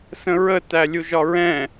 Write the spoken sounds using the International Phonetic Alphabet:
s ə̃ ɹ ə t æ lʲ u ʒ ɒ ɹ ɛ̃

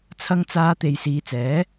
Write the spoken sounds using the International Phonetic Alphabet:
t͡sʰ ɐ˧ ŋ t͡s aː˨˧ t̪ e˨ j s iː˨˧ t͡s ɛː˨˥

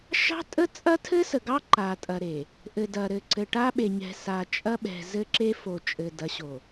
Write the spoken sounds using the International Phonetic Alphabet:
ʃ ɑ̤˦ tʼ ə˦ t͡sʼ ɐ˦ tʰ ɘ˦ s ə˨ ɡ ɑ˦ ǃ a˨ tʼ ɐ˨ ɾ e˨ | ʔ ɘ˨ d ɐ˨ ɾ ɘ˨ ǀ ɘ˨ ʈ a˦ ɓ e˨ ɲ ɛ̤˨ s a˨ t͡ʃʼ ɐ˦ ɓ ɛ̤˨ z ɘ˦ ǁ e˦ f o˨ t͡ʃʼ ɘ˨ d ɐ˨˦ ɕ o˨

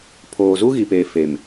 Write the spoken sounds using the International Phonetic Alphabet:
pʰ oː˨ z u˦ ɣ i˨ p eː˨ f e˨ m

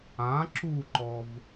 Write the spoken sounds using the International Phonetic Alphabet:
ã ǁ u ǃ ɔ v

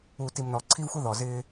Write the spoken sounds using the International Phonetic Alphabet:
uː˨ t i˨ m n ɔ˨ ǀʰ i˦ v xʷ ə˦ ð ɔ˨ z ɪː˦

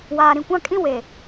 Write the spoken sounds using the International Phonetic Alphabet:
w aː˨ ɾ ĩ˨ kʷ ã˦ kʼ ĩ˦ w e˨

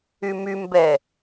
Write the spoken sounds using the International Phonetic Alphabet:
y m y m b ɛ

